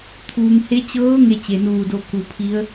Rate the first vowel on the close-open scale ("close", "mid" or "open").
close